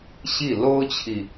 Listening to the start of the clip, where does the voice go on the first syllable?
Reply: falling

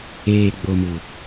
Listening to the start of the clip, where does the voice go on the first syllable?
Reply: low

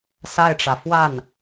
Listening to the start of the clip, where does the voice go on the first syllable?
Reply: falling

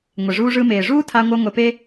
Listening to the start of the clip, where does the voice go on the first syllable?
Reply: low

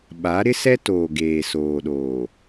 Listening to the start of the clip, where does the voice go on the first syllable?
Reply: rising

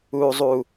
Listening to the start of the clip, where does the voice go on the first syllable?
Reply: low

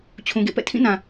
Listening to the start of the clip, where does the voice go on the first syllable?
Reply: low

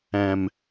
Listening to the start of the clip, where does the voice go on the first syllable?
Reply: low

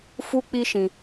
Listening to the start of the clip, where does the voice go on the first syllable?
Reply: high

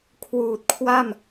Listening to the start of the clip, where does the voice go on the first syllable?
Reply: low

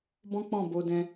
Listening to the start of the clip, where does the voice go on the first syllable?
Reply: high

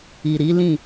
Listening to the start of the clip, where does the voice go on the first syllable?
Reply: low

